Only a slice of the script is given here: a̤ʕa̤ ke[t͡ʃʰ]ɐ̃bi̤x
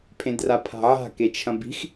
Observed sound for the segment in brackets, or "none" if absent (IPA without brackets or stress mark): t͡ʃʰ